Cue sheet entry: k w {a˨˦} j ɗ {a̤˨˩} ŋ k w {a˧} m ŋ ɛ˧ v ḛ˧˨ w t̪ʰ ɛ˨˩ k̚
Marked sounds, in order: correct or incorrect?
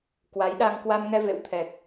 correct, incorrect, correct

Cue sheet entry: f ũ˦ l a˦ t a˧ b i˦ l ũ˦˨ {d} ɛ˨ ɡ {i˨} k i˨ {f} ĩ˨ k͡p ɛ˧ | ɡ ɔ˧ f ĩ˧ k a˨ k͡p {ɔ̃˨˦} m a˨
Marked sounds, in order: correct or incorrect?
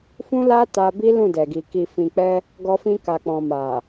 correct, correct, correct, incorrect

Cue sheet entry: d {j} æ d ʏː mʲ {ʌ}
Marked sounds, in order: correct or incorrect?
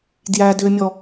correct, incorrect

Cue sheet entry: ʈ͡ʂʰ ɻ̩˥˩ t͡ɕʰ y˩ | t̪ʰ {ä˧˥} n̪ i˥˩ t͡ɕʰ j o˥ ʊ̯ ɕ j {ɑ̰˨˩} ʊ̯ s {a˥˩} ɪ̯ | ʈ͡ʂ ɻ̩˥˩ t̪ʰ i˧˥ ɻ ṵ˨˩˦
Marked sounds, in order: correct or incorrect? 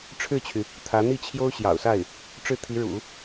correct, correct, correct

